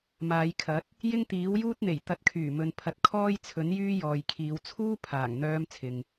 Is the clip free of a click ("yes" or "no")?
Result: yes